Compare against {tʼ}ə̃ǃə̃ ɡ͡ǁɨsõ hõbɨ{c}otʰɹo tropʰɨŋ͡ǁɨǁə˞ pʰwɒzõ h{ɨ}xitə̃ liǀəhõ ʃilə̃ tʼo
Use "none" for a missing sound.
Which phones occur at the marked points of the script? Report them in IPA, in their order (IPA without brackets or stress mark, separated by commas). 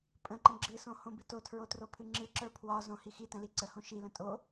pʼ, t, i